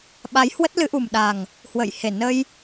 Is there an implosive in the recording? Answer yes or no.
yes